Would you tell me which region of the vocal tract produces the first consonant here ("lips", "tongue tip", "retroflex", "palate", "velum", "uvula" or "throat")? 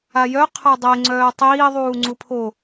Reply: palate